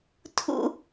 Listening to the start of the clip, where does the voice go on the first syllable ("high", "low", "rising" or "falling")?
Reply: falling